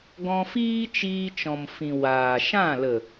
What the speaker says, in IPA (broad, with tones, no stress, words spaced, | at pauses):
ɡɔ̃˧ fiː˦t͡ʃiː˧t͡ʃɔ̃˨mfĩ˨ waː˨ʃã˦˨ lə˨